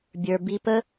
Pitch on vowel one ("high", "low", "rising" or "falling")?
low